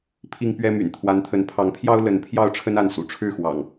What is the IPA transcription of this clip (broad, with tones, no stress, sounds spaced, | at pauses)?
pʰ i˦ ŋ p ɥ ɛ˦ m y̰˨˩ n t̪ʰ w a˨˦ n t̪ʰ ə˨˦ n pʰ ɑ˨˦ ŋ pʰ j ɑ˦ ʊ̯ l ə˨˦ n pʰ j ɑ˥˨ ʊ̯ ʈ͡ʂʰ ə˦ n a˥˨ n s ṵ˨˩ ʈ͡ʂʰ ɻ̩˥˨ x w ɑ̰˨˩ ŋ